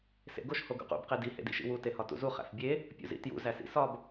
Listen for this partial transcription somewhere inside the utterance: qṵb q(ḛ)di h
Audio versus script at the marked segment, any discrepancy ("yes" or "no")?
yes